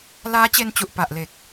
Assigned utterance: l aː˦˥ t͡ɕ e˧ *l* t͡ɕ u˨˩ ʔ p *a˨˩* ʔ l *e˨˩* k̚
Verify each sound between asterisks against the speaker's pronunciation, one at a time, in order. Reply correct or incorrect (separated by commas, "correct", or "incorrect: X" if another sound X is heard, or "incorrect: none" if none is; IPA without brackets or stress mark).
incorrect: n, correct, correct